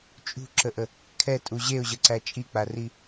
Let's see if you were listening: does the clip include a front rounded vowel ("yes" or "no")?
no